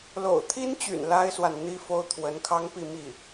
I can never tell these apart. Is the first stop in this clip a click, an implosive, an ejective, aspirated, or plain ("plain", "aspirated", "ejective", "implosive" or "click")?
aspirated